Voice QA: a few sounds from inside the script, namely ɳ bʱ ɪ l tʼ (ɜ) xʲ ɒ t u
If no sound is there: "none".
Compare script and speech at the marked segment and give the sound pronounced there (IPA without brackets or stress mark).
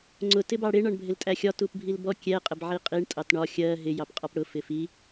æ